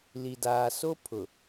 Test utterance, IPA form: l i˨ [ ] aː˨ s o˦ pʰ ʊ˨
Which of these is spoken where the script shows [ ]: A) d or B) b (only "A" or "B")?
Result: A